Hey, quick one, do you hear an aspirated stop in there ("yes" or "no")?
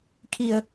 yes